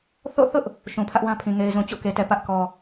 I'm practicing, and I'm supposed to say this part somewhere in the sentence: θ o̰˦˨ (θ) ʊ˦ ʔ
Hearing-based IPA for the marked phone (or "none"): θ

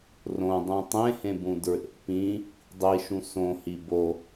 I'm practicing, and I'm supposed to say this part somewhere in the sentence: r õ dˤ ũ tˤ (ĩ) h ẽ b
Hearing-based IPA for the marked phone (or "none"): ẽ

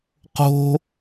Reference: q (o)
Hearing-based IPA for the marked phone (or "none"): o̤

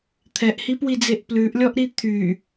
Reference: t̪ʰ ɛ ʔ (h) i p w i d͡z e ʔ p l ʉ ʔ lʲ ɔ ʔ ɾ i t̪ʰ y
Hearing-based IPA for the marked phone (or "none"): h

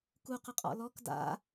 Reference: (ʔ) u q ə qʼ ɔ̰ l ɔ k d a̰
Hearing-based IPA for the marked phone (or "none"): k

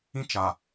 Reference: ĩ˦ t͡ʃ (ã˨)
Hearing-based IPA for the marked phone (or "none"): a˨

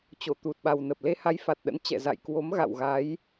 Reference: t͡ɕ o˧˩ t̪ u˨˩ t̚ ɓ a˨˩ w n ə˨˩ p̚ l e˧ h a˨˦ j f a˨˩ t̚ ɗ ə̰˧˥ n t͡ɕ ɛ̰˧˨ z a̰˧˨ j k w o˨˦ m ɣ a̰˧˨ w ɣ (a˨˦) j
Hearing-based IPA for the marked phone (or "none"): a˨˦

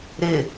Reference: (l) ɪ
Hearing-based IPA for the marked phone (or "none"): ɾ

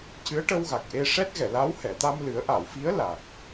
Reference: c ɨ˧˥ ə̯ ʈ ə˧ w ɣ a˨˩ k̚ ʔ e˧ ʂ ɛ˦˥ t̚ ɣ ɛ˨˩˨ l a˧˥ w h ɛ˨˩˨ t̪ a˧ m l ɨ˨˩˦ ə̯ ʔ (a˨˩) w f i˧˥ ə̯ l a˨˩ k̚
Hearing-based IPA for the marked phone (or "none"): a˨˩˨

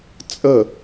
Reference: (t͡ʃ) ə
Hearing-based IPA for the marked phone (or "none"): t͡sʼ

